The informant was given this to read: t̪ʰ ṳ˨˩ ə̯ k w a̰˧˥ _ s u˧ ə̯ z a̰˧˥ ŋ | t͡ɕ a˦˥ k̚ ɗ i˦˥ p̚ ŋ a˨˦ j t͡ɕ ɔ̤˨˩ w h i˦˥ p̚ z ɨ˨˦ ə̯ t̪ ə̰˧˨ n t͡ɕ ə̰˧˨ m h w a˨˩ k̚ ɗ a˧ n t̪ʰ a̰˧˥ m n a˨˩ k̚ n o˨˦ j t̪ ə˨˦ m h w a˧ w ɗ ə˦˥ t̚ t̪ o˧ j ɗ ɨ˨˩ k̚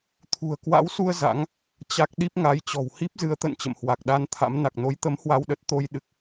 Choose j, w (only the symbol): w